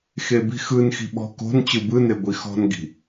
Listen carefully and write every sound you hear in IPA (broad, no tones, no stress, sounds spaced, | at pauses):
x e b i̤ x ɯ n x i̤ ɓ ɔ̤ k o̤ n t͡ɕ ɯ b ɯ n e ɡʷ i x ɔ̤ n ɡ i̤